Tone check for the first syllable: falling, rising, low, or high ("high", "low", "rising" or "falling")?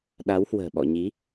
rising